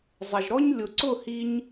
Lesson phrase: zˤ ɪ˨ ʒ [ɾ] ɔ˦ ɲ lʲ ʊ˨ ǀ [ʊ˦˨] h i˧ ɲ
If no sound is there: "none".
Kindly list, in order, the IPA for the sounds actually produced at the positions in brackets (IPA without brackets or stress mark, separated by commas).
ɾ, ʊ˦˨